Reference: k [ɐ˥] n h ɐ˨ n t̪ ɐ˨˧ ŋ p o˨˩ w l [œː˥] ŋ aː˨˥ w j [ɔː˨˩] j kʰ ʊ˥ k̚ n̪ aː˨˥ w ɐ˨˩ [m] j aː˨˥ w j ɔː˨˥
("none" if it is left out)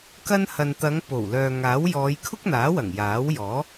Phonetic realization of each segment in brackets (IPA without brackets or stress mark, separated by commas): ɐ˥, œː˨, ɔː˨˧, ŋ